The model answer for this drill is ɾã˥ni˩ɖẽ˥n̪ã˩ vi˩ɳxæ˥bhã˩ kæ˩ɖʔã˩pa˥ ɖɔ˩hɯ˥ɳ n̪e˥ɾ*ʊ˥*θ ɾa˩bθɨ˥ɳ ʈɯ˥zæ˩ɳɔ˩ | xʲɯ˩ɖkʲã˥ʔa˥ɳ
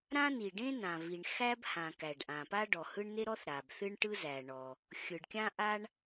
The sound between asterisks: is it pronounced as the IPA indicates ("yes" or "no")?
no